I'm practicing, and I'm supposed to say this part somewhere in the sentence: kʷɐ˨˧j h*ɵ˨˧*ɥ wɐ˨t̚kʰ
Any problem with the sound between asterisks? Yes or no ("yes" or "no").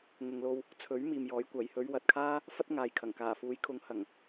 no